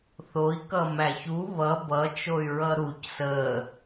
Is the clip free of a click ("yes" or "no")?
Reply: yes